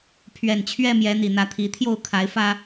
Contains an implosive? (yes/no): no